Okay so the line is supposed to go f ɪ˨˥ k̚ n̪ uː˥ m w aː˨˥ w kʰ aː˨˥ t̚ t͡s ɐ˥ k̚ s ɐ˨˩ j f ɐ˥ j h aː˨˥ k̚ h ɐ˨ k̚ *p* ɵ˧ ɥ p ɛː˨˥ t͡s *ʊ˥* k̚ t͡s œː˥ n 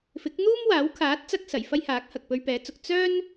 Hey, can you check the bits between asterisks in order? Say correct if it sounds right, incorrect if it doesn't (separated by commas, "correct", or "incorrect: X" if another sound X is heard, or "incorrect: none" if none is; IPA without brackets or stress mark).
correct, incorrect: ʊ˨